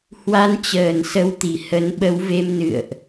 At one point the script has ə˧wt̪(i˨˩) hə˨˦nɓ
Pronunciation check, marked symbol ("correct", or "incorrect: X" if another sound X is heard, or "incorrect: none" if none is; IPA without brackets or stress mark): correct